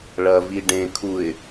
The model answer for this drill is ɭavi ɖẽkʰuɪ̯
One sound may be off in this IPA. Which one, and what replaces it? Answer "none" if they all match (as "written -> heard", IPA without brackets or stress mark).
a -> ɐ